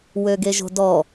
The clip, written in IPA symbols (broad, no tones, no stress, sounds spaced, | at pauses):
w ø ɡ e ʒ o̤ d ɔ